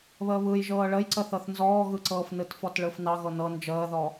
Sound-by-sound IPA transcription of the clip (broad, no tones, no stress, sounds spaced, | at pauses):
β əː β ɯ j ʒ ɤː ɭ ə j ǀ ə θ ɤ θ n z ɔː ɣ ɯ ǀ ɤː f n ɯ t f ɔ t ɭ ɯ f n ɑ ɣ ɤ n ɤ n d͡ʒ əː ð ɔ